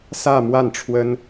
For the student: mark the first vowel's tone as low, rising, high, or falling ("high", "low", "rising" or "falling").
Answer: falling